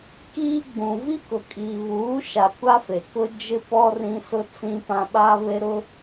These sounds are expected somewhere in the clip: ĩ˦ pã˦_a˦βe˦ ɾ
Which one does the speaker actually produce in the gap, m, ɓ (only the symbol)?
ɓ